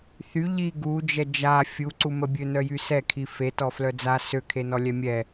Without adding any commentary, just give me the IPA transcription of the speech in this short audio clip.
θ y ʎ i ɡ u d͡ʒ ɛ d͡ʒ a fʲ u ǀ u m ə bʲ ø n œ j y s ɛ kʰ i f e t ɔ f l œ d͡z a s ø kʰ e n ɔ lʲ ɛ mʲ ɛ

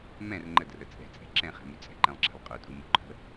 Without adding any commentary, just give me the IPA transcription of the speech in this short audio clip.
m ɛ̃ r ŋ͡ǃ ə d r ə t͡sʼ ɛ̤ t͡sʼ ɛ̤ ǁ ɛ̃ χ ɛ̤ m y t͡sʼ ɛ̤ ǃ ɛ̃ lˠ ǁ ɛ̤ lˠ qʼ ɵ tʼ u m u ǃʰ ə̤

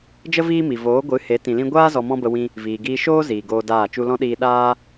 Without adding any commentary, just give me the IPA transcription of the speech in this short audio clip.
d͡ʒ ə˦ v iː˦ m i˨ v oː˨˦ ɡʷ ɨ˨˦ h e˨˦ t ĩ˨ l ĩ˧ ɡʷ aː˦ z ɔ˧ m ɔ̃˦ b ə˧ w ĩ˧ | v iː˨ ɡ iː˧ ʃ oː˦ z iː˨ ɡ oː˧ d aː˦˨ t͡ʃ u˧ l ɔ̃˦ ɗ iː˧ ɗ aː˦

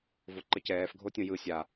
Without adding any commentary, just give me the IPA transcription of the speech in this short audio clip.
v o ǃ ə c ɛː f ɡʱ o tʲ õ j ɯ sʲ a

